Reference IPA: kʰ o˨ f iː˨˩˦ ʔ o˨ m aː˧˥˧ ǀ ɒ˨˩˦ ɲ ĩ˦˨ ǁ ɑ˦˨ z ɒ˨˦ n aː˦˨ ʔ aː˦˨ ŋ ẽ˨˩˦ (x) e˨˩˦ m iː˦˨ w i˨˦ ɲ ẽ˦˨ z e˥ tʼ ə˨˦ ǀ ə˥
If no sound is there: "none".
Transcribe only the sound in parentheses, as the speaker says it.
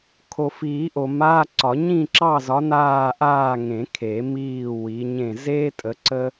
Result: kʰ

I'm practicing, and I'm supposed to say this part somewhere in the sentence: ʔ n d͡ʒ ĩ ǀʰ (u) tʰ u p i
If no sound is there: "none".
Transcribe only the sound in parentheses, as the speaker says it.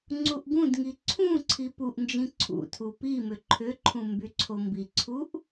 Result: ṵ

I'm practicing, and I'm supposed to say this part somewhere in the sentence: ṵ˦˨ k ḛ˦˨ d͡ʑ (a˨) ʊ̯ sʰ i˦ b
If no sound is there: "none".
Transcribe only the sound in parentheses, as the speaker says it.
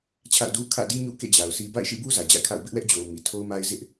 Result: a˨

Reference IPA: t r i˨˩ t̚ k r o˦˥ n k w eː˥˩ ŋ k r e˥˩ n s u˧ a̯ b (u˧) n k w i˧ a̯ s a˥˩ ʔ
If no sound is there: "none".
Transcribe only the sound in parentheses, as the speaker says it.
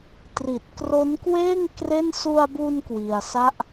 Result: u˧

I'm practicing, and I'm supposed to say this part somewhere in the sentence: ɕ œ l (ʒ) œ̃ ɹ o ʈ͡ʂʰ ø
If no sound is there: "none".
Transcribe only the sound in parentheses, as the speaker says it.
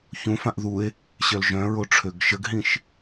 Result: ʒ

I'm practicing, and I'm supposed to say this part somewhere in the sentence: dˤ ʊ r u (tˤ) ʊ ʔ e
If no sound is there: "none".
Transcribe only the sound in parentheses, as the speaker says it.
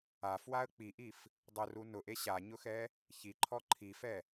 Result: n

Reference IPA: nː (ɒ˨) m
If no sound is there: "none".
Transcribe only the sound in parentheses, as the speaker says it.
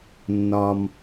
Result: ɒ˨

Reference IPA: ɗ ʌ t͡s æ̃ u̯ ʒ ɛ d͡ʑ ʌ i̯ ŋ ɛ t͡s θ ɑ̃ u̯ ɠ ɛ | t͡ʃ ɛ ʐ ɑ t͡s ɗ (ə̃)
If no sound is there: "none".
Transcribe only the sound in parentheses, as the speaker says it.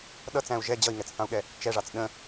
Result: ə̃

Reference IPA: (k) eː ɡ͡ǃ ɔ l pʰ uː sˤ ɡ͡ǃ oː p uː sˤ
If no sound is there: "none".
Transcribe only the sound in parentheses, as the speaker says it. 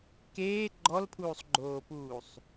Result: k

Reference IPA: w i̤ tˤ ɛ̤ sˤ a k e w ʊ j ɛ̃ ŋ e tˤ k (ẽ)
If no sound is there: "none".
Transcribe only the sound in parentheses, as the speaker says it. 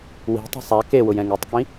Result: ĩ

